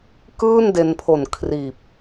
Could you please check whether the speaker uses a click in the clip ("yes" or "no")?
no